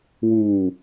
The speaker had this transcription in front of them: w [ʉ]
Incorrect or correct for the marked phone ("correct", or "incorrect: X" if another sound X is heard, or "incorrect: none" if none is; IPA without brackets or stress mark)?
incorrect: u